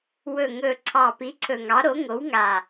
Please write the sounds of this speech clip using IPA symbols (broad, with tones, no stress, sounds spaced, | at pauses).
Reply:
w ɵ˨˩ ŋ ɵ˨˩ ǀʰ ɑ˨˩ p i˩˥ ǀʰ ɵ˨˩ ŋ ɑ˩˥ ɾ o˩˥ ŋ o˩˥ w ŋ a˨˩